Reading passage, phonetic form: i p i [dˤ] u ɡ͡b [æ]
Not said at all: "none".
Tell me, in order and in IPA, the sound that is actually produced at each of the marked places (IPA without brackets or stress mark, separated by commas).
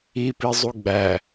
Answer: zˤ, æ